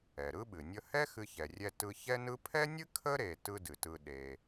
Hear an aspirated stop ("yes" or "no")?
yes